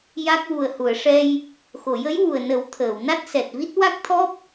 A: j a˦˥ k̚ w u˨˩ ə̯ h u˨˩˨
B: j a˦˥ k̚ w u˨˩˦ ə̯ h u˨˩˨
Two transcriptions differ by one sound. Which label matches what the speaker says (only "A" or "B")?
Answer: A